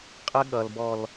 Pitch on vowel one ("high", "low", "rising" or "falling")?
high